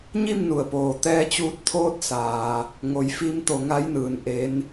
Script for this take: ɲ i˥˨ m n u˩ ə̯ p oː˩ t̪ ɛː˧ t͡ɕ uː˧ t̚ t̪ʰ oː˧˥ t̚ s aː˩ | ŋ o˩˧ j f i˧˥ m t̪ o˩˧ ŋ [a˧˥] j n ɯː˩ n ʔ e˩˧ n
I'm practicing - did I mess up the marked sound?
no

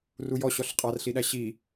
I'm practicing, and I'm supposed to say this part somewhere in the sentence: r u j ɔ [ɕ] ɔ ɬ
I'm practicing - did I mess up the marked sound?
no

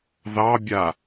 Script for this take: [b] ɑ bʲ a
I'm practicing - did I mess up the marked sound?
yes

